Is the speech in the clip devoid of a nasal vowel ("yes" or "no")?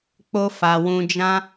no